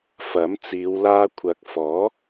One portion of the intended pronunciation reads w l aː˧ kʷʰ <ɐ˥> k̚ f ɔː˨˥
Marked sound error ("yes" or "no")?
yes